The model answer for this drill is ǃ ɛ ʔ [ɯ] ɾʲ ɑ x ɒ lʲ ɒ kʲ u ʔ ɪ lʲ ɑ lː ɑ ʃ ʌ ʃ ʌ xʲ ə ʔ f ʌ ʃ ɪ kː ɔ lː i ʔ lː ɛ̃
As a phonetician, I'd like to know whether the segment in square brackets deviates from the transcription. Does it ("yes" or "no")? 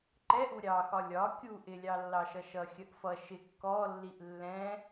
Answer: yes